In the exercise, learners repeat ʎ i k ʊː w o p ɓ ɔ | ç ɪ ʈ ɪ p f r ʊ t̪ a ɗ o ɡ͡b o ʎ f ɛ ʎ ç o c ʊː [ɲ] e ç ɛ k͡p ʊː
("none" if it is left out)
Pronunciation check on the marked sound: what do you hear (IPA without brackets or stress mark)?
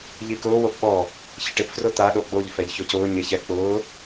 ɲ